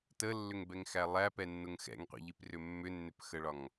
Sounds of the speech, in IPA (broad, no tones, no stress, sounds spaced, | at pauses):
t ə lː ʏ ŋ b ɛ ŋ x æ lˠ æ p ɛ nː ʊ ŋ x ɛ̰ ŋ qʷ ḭ ʎ i p r ʏ mː ʏ nː ʏ p x ə ɭ ɒ ŋ